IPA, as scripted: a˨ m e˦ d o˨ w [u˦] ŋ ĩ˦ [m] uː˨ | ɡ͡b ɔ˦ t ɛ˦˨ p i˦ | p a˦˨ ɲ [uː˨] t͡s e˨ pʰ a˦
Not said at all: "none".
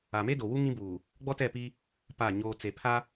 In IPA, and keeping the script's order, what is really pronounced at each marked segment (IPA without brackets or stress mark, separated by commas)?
u˦, b, oː˨